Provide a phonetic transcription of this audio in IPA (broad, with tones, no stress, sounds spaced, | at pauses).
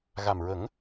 ɣ a˨˩ m ɹ ə˨˩˦ ŋ